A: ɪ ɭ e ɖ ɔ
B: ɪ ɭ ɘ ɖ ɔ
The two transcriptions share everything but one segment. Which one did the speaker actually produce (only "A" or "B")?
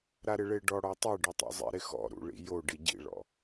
A